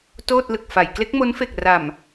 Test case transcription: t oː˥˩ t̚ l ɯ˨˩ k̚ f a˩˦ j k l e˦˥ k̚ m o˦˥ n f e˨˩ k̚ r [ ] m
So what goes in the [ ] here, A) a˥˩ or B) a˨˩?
B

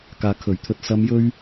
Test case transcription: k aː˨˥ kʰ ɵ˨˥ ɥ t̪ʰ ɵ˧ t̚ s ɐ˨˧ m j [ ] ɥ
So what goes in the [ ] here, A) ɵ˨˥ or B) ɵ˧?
B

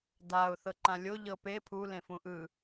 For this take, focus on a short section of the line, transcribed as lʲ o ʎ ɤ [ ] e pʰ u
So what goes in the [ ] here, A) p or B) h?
A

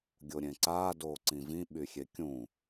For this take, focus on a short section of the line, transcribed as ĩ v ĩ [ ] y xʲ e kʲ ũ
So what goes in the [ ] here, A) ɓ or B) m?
A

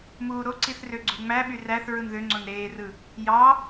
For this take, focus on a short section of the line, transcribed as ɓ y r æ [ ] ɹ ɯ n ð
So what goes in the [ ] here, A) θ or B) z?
A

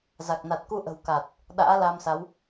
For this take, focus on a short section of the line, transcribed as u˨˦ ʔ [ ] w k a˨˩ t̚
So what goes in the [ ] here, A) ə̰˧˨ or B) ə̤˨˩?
B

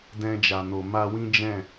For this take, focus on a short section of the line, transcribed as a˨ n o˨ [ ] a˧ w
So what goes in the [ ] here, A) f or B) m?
B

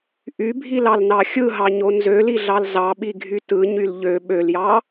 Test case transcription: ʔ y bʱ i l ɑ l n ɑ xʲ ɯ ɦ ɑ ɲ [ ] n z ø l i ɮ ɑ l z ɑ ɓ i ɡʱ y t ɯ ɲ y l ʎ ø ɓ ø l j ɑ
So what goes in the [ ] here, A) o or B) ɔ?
A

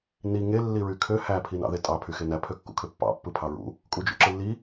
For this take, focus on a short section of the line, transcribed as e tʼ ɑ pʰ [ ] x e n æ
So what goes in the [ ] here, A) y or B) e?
A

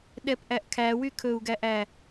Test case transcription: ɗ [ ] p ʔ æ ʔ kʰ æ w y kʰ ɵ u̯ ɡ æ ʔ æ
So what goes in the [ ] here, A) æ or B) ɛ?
B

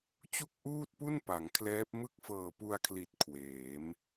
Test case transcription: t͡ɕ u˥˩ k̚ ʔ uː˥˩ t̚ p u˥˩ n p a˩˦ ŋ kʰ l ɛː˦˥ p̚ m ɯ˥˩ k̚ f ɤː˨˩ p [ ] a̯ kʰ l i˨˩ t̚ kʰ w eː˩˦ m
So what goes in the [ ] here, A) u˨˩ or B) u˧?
B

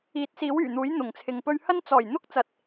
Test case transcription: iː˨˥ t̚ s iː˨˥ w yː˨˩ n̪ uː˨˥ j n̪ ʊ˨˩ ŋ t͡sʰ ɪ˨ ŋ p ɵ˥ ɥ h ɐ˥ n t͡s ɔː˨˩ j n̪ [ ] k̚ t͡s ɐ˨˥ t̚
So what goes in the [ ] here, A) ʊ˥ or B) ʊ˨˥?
A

